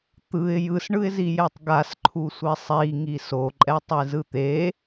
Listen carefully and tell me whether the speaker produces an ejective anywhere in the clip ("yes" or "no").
yes